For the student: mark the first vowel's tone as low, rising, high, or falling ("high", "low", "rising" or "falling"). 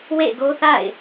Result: falling